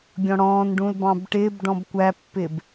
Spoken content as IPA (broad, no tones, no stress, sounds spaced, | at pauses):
ɡʲ ɔ̃ ɽ ɔ̃ː n ɖ ũ l b ɑ̃ b ʈ ɪː b ɖ ɔ̃ b kʷ æ pː ɪ b